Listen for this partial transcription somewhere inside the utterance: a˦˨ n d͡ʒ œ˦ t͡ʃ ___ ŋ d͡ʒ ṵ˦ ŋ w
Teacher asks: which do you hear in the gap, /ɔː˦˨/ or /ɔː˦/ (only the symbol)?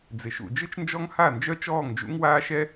ɔː˦˨